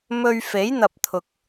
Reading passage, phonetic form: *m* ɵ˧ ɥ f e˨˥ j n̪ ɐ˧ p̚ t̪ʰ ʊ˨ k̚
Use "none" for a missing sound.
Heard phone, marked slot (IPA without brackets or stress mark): m